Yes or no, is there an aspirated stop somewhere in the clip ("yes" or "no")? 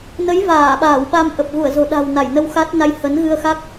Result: no